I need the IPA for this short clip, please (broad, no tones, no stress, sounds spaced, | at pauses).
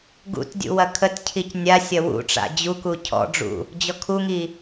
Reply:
ɡ ṵ t dʲ ṵ w ɐ kʰ ə t cʰ i c nʲ a sʲ ɐ w ṵ ʈ͡ʂ a̰ d͡ʑ u k u cʰ ɔ̰ ɖ͡ʐ ṵ | d͡ʑ ɔ kʰ u ŋ i